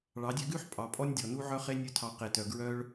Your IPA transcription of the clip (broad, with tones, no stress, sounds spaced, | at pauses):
ɭ ɑ˨˦ dʲ ø˦ ɡ ʉ˦ ħ pʼ ɑ˨ pʼ ɔ˦ nʲ dʲ ɔ˨ n u˦ ʕ œ˦ χ e˦ nʲ ɵ˦˨ tʰ ɑ˧ q e˧ t œ˧ ɡ ɹ œ˦ ɭ